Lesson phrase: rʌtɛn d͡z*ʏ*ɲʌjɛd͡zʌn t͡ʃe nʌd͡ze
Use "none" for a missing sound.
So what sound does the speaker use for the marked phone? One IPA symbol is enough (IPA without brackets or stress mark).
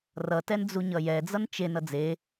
u